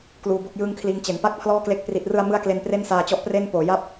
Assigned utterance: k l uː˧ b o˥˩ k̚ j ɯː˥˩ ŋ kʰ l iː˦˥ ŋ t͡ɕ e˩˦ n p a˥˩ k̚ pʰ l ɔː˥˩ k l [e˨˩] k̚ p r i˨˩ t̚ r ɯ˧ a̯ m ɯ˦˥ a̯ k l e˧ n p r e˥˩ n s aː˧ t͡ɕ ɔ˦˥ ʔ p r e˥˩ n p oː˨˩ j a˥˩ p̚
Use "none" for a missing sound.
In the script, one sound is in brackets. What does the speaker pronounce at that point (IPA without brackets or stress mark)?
e˦˥